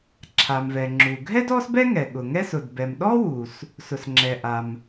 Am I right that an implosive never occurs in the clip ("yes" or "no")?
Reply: no